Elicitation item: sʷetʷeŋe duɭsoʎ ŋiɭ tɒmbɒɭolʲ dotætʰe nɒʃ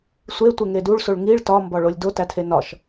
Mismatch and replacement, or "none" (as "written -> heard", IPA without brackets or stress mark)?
ʎ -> ɭ